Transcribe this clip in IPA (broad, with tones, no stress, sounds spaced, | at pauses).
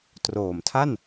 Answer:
t r oː˨˩ m tʰ a˥˩ n